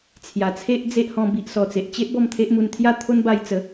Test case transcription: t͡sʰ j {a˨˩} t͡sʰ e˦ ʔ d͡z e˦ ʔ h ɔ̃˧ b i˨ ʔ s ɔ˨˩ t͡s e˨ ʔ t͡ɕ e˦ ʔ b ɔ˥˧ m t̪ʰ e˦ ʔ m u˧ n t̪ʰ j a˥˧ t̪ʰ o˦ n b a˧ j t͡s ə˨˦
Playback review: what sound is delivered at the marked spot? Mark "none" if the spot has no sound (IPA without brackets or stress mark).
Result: a˨˩